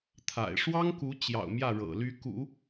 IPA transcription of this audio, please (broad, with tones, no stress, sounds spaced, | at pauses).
t̪ʰ a̰˨˩ ɪ̯ ʂ w ɑ˥ ŋ k u˧˥ t͡ɕ j ɑ̰˨˩ ʊ̯ m j ä˥˩ ɻ ɤ̰˨˩ l y˧˥ k ṵ˨˩˦